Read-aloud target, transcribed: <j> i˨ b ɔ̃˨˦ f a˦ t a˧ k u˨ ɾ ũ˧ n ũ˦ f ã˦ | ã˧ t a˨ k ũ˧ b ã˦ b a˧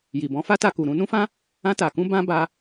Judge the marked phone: correct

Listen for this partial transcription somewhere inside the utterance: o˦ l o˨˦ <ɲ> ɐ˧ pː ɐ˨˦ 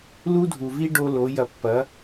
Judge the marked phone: incorrect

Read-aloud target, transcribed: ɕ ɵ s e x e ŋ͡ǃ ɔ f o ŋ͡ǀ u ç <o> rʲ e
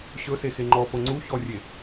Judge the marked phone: incorrect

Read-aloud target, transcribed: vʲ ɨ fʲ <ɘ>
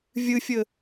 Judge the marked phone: correct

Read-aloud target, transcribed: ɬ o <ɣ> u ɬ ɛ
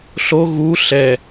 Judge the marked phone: correct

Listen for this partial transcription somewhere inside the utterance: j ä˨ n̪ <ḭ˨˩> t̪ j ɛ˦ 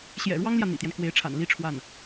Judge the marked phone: correct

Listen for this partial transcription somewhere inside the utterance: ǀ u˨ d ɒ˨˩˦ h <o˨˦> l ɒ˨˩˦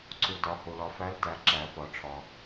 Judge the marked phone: incorrect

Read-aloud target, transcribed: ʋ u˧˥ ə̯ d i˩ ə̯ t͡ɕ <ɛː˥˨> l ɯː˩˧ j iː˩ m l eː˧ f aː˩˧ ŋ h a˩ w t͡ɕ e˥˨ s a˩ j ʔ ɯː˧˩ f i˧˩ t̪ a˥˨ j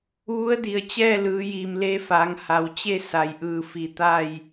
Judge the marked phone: correct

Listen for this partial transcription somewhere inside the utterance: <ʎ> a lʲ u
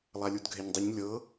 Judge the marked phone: incorrect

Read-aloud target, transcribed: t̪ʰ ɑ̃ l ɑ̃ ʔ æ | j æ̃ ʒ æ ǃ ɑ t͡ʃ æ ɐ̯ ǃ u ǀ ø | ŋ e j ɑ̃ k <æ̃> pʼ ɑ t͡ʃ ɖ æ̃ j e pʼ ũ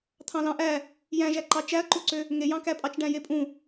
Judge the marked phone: incorrect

